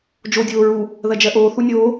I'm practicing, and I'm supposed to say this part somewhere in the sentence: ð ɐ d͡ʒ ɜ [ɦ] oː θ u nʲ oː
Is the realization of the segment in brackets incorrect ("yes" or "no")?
yes